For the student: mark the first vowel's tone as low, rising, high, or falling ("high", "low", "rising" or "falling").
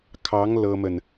rising